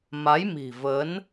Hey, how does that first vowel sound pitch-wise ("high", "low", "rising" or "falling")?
rising